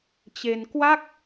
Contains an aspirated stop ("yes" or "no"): no